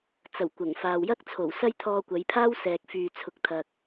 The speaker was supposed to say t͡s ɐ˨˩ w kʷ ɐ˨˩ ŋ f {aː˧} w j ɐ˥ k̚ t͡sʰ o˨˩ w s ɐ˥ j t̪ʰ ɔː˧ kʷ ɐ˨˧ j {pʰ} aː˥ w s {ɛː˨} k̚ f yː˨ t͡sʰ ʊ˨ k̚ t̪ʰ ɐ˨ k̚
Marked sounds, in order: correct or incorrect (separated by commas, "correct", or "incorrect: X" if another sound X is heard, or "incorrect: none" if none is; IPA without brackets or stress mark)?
incorrect: aː˨, correct, correct